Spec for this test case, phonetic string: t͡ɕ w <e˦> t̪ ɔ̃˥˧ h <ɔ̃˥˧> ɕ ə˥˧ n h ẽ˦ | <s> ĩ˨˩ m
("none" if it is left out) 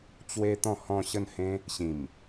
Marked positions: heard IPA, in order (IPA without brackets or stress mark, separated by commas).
e˦, ɔ̃˥˧, ɕ